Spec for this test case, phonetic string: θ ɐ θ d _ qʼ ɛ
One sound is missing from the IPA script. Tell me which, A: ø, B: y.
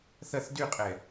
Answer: B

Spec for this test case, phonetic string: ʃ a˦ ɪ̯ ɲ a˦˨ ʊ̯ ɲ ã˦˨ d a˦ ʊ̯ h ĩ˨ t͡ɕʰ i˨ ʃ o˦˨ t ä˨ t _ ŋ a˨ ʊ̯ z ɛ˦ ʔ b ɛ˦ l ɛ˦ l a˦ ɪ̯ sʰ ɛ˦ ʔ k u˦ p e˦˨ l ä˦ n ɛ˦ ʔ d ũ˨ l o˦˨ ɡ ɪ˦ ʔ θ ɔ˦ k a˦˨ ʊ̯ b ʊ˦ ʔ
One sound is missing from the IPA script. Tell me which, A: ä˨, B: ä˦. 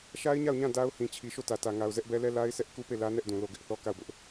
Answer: A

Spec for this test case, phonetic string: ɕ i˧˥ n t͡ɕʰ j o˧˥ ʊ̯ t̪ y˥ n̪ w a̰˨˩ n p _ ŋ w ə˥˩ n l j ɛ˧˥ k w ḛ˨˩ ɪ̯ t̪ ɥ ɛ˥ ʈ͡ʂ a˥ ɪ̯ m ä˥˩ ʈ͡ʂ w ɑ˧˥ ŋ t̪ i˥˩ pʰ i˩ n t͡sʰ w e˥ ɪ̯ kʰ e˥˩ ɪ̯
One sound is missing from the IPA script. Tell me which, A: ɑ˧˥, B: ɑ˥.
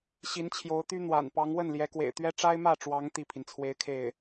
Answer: A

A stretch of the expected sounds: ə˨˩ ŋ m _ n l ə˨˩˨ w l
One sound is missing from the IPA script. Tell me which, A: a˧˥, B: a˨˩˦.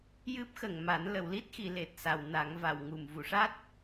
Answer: B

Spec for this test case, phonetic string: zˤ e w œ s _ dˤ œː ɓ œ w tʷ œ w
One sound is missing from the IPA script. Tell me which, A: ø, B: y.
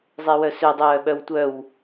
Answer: A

